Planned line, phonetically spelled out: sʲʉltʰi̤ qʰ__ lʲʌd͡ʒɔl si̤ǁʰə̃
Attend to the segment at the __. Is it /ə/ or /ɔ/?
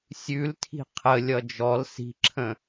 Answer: ə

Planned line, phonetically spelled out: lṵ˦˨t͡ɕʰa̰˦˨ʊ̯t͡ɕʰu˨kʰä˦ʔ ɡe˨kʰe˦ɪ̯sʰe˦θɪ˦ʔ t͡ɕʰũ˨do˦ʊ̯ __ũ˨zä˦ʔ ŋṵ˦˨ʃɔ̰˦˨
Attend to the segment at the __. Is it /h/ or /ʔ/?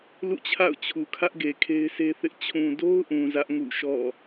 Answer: ʔ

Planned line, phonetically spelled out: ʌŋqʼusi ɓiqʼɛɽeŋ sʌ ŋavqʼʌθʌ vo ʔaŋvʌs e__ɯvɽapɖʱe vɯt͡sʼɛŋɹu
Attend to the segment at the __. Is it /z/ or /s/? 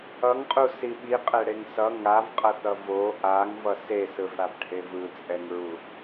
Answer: s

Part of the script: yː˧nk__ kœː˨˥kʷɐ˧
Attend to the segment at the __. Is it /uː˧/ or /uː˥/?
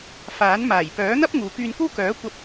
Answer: uː˥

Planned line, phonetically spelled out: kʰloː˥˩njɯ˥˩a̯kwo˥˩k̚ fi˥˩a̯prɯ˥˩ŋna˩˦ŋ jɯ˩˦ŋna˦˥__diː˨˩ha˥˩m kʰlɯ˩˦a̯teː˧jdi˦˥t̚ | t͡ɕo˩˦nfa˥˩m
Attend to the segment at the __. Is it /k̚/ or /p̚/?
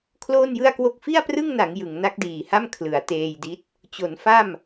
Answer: k̚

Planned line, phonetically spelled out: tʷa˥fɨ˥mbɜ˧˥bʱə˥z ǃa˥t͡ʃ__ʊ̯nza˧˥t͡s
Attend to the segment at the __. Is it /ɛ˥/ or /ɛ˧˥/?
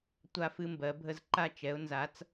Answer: ɛ˧˥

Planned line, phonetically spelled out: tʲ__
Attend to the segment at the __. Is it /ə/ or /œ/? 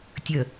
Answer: ə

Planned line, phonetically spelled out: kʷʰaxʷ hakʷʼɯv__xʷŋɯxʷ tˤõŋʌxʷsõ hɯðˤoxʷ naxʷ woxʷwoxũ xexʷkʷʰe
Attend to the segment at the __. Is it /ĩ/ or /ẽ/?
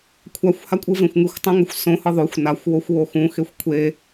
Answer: ẽ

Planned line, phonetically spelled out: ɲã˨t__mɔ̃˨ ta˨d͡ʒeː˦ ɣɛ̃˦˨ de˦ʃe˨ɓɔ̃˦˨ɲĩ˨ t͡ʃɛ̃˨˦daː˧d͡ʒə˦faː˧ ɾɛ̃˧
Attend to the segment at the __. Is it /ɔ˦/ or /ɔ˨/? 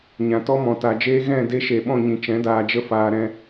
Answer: ɔ˦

